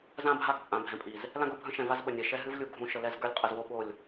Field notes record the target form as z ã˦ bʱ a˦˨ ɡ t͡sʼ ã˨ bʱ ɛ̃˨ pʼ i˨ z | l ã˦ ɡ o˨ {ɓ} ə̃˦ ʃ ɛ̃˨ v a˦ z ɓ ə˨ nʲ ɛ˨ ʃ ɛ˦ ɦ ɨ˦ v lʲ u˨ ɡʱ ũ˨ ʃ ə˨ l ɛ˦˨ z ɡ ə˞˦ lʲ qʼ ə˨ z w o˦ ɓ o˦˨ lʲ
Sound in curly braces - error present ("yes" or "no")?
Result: yes